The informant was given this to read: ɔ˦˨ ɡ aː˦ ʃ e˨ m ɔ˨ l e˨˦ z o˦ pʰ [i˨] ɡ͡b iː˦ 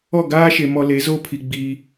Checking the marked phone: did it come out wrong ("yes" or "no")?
no